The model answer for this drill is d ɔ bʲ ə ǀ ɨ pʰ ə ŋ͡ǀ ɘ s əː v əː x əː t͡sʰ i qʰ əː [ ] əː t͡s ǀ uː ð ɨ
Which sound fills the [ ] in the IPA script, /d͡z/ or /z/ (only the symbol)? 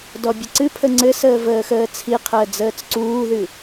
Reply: d͡z